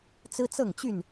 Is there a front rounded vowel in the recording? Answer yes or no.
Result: yes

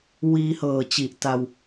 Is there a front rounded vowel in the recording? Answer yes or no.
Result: no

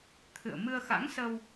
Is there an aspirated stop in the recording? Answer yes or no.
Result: yes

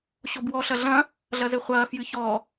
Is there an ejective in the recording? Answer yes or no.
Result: no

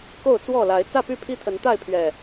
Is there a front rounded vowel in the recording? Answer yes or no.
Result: yes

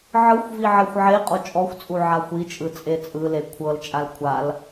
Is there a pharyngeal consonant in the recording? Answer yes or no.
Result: yes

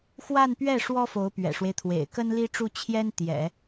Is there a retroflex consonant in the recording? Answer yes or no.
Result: yes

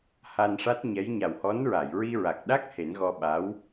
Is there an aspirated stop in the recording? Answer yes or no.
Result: no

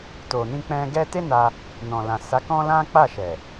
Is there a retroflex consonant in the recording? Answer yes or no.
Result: no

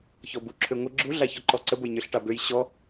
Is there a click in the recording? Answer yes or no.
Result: yes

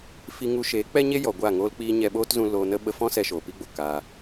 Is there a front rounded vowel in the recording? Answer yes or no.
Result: no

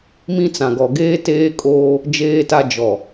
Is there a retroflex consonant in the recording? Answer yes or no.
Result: no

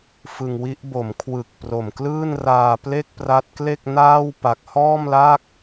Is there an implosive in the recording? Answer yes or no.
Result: no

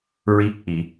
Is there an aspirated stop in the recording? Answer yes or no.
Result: no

